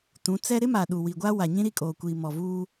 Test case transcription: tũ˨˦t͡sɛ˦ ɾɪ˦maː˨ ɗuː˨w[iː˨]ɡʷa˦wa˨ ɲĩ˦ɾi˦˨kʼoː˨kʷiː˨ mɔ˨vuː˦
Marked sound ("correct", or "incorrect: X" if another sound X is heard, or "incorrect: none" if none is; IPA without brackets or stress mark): incorrect: i˨